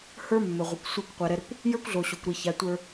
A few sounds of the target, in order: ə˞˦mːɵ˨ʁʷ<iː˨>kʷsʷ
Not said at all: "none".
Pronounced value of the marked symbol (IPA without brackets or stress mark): i˨